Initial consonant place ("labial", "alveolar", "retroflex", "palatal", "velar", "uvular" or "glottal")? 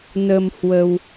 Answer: alveolar